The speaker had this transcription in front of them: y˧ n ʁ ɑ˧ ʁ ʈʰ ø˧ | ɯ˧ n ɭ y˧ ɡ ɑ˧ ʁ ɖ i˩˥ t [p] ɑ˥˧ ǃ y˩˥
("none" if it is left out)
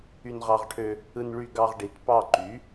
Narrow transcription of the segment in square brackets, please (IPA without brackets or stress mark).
p